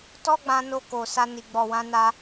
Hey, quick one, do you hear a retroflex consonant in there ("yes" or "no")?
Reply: no